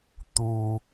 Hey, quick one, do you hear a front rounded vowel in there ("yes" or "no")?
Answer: no